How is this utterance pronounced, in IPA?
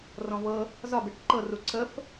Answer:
r ɔ̃ v ɤ | z ɒ b e ʈ ǃ ɤ r u ǀ ə f

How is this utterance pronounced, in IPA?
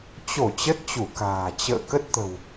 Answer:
t͡ɕ o˧˩ t͡ɕ ə˦˥ t̚ t͡ɕ u˧˩ k a̤ː˨˩ t͡ɕ ə̰ː˧˨ k ə˦˥ t̚ t̪ ə̤˨˩ w

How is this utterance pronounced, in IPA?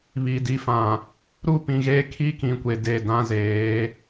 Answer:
β i˨ d i˨˦ f ã˨ | ɾ u˦ p ĩ˨ ɣ e˦ kʰ i˦ k ĩ˨ kʷ e˨ d e˦˨ d ã˦ z eː˨˦

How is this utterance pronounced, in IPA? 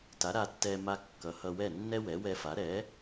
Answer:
t a˩˥ ɾ a˧ tː ɛ˧ m a˧ kː ʌ˩˥ h ʌ˧ w ɛ˥˩ nː ɛ˥ w ɛ˩˥ w ɛ˧ f a˩˥ ɾ ɛ˩˥

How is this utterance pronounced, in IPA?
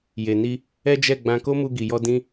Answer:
j e˨ n i˧ | ɛ˦ d͡ʒ ɛ˦˨ ɡ͡b ã˧ k o˦ m u˧ ɡ i˨ j ɔ˧ d ĩ˦

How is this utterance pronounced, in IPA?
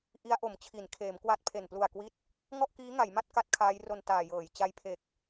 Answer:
ʔ i˦˥ a̯ ʔ o˩˦ m t͡ɕʰ i˩˦ n kʰ eː˩˦ m k w a˦˥ t̚ pʰ e˨˩ n p l u˨˩ a̯ k w i˦˥ t̚ | ŋ ɔ˥˩ ʔ k iː˦˥ ŋ a˩˦ j m a˦˥ t̚ k a˦˥ t̚ kʰ aː˦˥ j r o˧ n t aː˨˩ j ɤː˩˦ j t͡ɕ a˦˥ j pʰ e˨˩ k̚

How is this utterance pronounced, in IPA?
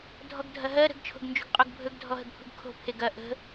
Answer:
dʱ ɔ ɡ dʱ ɐ ɦ ɜ ɾ ə̤ ɡ t͡ʃʰ o̤ ɡ n d͡ʒ ṳ ɡ qʼ o ɡ bʱ ɵ ɡ dʱ ɔ ɦ ə ɡ pʰ ṳ ɡ kʰ o̤ pʰ e ɡ ɐ ʔ ə̤

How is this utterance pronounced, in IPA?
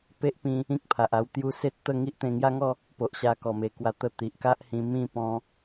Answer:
p e˦ ʔ p ĩ˧ | ĩ˦ k̚ pʰ a˨ ʔ a˧ w t̪ j u˧ s e˦ t̚ t̪ ə˥˧ ŋ i˦ ʔ t̪ ẽ˧ ŋ j a˦ ŋ ɔ˥˧ | p o˨ ʔ ɕ a˧ k ɔ˨˩ m e˨˩ k w a˧ t̪ ə˧ t̪ i˨ ʔ k a˦ ʔ h ĩ˧ m ĩ˥˧ p ɔ̃˧

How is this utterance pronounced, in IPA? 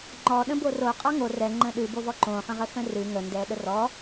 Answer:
ŋ͡ǃ ɔ ɗ ə̃ b o r o qʼ ɔ ŋ o r ɛ ŋ͡ǃ ə̃ ɗ ɨ b o v ɔ ǃ õ χ ə̃ ʁ ə x ə̃ r ɨ ŋ ə n d ɛ ɗ ə r ɔ

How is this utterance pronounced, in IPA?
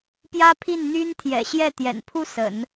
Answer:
p j ä˥ pʰ i˥˩ n n̪ y˥ n t̪ʰ j ɛ̰˨˩ ɕ j ɛ˥˩ t̪ j ɛ̰˨˩ n pʰ u˥ s ə̰˨˩˦ n

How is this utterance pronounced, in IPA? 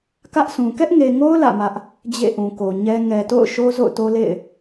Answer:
k ä˦ ʔ sʰ ũ˨ k ɛ˦ ʔ ŋ e˨ ŋ o˦ ʊ̯ l ä̰˦˨ m ä˦ ʔ | d͡ʑ ḛ˦˨ ʔ ũ˨ k o˨ ɲ ɛ˦ ŋ ɛ˨ t o̰˦˨ ʊ̯ ʃ o˦ z o̰˦˨ ʊ̯ t o˦ l ḛ˦˨ ɪ̯

